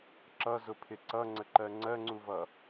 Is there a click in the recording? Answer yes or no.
yes